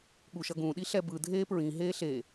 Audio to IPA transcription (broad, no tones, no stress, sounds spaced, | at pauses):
ɠ u ʃ ʌ ɡ ũ ɗ i ɬ ɛ b ɯ dʱ eː p ɹ ĩ ɦ eː ɬ e